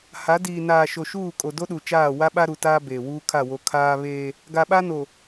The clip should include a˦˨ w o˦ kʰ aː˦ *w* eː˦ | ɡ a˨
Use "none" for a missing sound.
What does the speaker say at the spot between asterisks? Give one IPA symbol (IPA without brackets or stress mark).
β